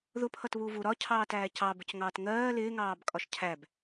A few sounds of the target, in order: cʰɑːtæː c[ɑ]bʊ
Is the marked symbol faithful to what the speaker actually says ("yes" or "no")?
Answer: yes